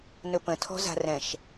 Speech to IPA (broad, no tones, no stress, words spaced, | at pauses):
nɵpə̃tʰɔ̤za̤ rɛ̃ʃ